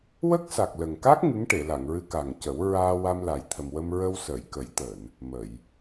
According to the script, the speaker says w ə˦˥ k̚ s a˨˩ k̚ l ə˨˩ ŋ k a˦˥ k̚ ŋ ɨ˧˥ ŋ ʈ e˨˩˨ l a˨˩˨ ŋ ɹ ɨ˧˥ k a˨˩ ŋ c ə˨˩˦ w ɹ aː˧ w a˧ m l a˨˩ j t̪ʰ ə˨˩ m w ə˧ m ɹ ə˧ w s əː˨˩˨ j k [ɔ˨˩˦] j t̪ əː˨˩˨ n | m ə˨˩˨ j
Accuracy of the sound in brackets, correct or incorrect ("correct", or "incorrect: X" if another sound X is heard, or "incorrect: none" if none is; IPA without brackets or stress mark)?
incorrect: ə˨˩˦